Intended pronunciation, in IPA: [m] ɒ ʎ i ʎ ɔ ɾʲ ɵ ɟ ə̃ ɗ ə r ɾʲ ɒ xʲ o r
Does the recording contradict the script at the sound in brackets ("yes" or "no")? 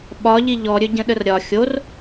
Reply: yes